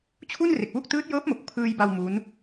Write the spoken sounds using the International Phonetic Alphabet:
t͡ɕʰ u˥˩ n r e˨˩ k̚ w u˥˩ k̚ t ɯː˦˥ t̚ j ɤː˦˥ p̚ m o˨˩ k̚ pʰ ɯː˧ j b a˧ w m u˦˥ n

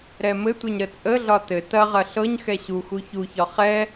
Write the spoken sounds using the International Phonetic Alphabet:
ɾ ɛ m ɘ tʷ ɛ ɲ ɾ ə t͡sʼ ə ɮ ɒ t ɘ t ɐ ʁ ɐ ɬ ɤ ɲ x ɛ ɕ u x u ç u ç ɒ χ ɛ

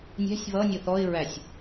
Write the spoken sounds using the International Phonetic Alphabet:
nʲ æ̤ sʲ β ʌ nʲ ʊ θ ɔ ɪ̯ ɹ æ sʲ

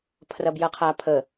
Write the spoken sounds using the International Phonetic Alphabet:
pʰ r ɐ b j ɐ qʰ a pʰ ə

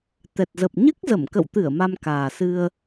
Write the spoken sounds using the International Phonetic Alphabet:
t̪ ɛ˨˩ t̚ z ə˨˩ p̚ ɲ ɨ˦˥ k̚ z ə˧˩ m k ə̰˧˨ w t̪ ɨ˧˩ ə̯ m a˧ m k aː˨˩ s ɨ˧ ə̯

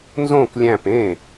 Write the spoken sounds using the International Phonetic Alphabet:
n z õ k lʲ æ̃ p ẽ

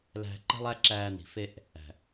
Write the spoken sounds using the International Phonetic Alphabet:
l æ̤˧ ǃ e̤˦ lˠ æ˦ ǁ æː˧ n i̤˨ f e˦ ʔ | æ̤˨

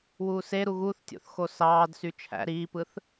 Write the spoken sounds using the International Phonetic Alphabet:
w uː s e ɾ u ɣ u θ tʲ o̰ θ x o s ɑː d s y t͡ʃʰ æ̰ ɾ iː p ɯ θ

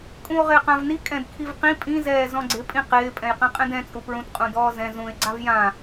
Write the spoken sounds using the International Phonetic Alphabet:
kʼ ũ o̯ ʁ ɪː q ã v n i kʼ ɛ̃ d kʰ i v q ĩ pʼ ĩ z ɛː z ɔ̃ ɡ͡ǀ ɪ pʼ ĩ q ɪː pʼ ɛ̃ j q ɛ̃ qʼ ɛ̃ d ɛ̃ t͡sʼ u p ɹ ũ t qʼ ũ d ɔː z ɛ̃ z ũ e̯ ɡ͡ǀ a v j ã

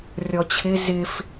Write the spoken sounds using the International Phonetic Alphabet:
rʲ ɔ t͡ɕʰ ɪ z ɪ f

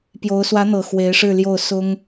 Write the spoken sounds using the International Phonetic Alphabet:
p j o˧˥ ʊ̯ s w ä˧˥ n̪ ɤ˨˩ x w e˧˥ ɪ̯ ʂ ɻ̩˥˧ l j o˥˩ ʊ̯ s ʊ˥ ŋ

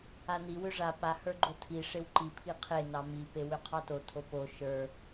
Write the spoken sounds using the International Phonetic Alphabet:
a n i w ʏ ʐ a p a h ə˞ ɡ͡ǃ o tʰ i ʂ e w ǃ i pʰ i qʰ e n ɑ m i p e w ʏ qʰ ɑ t o tʰ o p o ʃ ə˞

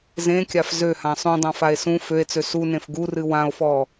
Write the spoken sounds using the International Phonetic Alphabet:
z ẽ kʲ a f z ø h ã sˤ ũ dˤ ã f a e̯ s ũ f ø e̯ t͡s ø s u n ẽ f ɡ u r ɨ w ã o̯ f ɔ

